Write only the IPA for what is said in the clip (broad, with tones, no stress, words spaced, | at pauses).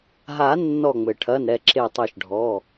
ɦa˨˩˦ nːɔ˧˩ŋ͡mɘ˩ʈʰɐ˩˧˩n ɾɛ˧˩ǁe˧˩tˤɛ˧˩ʃɖʱɔ˩˧˩